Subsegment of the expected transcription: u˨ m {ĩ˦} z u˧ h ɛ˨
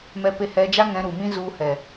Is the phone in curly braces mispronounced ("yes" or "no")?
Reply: no